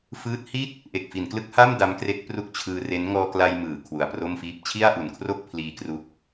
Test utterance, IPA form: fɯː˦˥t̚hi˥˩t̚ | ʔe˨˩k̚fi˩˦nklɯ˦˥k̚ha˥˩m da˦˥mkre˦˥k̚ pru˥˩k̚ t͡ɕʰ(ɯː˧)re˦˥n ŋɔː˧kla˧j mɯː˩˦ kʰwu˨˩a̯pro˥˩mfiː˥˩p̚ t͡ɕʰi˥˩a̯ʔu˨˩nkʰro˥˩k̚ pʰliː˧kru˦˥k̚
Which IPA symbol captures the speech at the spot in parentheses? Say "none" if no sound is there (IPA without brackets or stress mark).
ɯː˧